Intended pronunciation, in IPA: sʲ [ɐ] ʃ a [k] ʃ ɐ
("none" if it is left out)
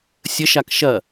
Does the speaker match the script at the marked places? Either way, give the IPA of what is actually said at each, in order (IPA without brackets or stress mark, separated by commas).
ə, k